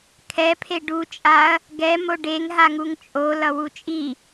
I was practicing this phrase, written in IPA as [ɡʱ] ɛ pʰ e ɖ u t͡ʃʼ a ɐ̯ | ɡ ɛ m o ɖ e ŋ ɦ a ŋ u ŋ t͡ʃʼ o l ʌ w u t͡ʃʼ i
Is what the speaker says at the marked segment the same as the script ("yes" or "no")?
no